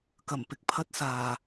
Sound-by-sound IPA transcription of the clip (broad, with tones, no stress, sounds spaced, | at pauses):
k ɐ˨˩ m p ɪ˨ k̚ pʰ ɐ˧ t̚ s aː˨˩